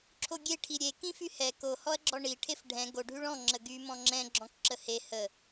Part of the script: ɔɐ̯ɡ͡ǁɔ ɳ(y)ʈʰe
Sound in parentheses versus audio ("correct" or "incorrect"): incorrect